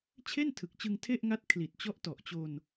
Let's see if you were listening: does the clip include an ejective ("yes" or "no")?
no